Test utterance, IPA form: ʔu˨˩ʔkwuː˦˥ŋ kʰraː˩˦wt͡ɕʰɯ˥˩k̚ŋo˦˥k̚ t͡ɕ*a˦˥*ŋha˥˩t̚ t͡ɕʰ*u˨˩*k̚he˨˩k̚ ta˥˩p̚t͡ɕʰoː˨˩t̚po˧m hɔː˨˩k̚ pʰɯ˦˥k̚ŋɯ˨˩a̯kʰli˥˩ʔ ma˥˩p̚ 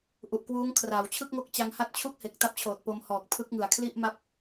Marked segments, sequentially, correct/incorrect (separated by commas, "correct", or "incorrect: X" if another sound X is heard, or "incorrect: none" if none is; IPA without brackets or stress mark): correct, incorrect: u˥˩